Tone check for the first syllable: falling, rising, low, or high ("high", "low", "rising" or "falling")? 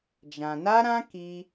low